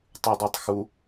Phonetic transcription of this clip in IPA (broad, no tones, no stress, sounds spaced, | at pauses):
tˤ ʉ dˤ ɜ tˤ x u